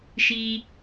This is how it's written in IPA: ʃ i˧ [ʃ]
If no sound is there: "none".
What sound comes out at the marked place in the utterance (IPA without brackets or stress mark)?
none